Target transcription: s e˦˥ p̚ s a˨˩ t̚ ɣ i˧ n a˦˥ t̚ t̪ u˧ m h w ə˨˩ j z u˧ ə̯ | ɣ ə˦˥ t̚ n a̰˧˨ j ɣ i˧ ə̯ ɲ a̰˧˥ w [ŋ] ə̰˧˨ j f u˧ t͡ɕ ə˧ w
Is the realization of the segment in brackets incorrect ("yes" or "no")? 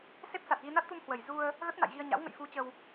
no